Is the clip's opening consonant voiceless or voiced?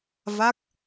voiced